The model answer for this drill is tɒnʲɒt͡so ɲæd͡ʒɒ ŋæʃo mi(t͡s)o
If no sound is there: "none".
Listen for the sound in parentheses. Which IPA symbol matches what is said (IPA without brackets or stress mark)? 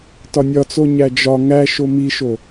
ʃ